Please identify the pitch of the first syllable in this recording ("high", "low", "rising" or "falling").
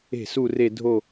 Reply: falling